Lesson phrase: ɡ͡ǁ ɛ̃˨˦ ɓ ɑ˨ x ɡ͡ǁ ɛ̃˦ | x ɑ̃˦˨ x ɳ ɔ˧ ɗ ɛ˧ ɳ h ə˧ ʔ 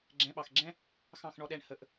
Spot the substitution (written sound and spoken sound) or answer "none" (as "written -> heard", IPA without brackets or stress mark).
none